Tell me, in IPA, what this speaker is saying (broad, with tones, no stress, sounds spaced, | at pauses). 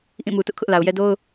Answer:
ʔ ĩ˦˨ m u˨ t ʊ˦ ʔ kʰ ʊ˦ ʔ l a˨ ʊ̯ j ɛ˦ d o˦ ʊ̯